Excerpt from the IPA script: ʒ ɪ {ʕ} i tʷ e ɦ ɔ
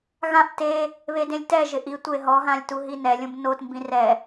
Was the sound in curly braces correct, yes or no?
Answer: no